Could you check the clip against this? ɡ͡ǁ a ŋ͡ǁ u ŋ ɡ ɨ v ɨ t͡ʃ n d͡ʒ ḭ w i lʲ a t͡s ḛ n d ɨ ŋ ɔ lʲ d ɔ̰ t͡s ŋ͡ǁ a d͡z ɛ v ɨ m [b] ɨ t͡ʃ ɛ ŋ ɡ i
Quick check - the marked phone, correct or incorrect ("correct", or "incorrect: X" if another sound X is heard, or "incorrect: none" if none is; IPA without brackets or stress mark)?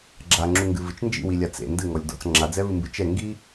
correct